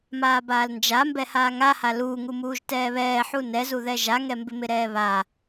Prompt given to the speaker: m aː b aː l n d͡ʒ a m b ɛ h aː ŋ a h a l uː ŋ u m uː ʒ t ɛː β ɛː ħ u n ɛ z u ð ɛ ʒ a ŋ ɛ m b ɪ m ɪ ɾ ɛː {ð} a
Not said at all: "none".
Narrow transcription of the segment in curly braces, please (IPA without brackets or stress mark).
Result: β